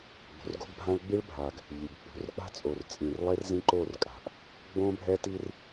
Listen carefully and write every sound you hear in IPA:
ɡ͡bo̤˨rɡo̤˦ɡbʱã˦ɭ ɡ͡bi˦ɭbʱa˨ɡ | ʎi˨ɡk͡pṳ˨˦r k͡pa̤˦t͡sʼo˨rt͡sʼĩ˨r lˠe˦rzĩ˦ǃo˦˨r kʼa̤˨ʔ | ɡ͡bõ˦bʱɛ˦ ti˦r

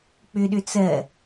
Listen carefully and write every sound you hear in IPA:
k͡pʏɗʏ t͡sɜ

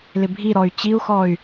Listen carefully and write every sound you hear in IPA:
lɪbʱiɾɔy̯ t͡ɕiu̯xɔy̯

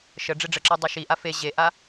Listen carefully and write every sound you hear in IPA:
ʃə ɖ͡ʐeɖ͡ʐəǁɑ dˤeʃiʔa fe ʑeʔa

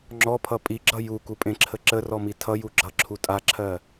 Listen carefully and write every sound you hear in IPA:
ŋ͡ǁɔpʰʌ pʼiɡ͡ǁʌ jukupʼẽǁʰə ǁərɔmi tʰʌju ɡ͡ǁʌǁʰu tʼaǁʰɜ

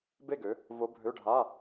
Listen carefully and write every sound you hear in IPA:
be˥˨ɡø˩˥ | vo˧˥bʱø˧˥˧ɖʱa˧˥˧

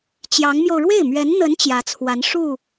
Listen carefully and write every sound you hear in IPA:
t͡ɕjɑ˧˥ŋmjo˧ʊ̯ ɻwe˥˩ɪ̯mɥɛ˧˥nn̪ə˧˥n t͡ɕjä˧˥t͡sʰwa˧˥n ʂu˥˩

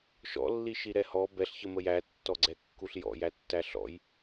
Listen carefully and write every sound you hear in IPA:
ʃɔ̰lːiʃiɾɛ hɔ bɛɬçəmə jætːɔɡ͡ǀɛkːuɬ jɔ̰jætːæ ɬɔ̰j

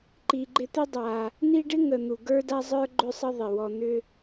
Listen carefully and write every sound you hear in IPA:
ǃi˨ɡ͡ǃɪ˦t̪ɪ˥ dˤa˨ | ni˦ɖɪ˥ ŋə˨n̪u˩ ɡə˞˦da˦ zˤə˞˦ɡ͡ǃʏ˦sˤə˦ ðˤɪ˩wɔ˨n̪ʏ˦

